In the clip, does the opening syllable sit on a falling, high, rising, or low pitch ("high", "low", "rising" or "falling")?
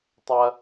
high